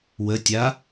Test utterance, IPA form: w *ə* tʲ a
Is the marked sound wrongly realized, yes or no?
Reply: no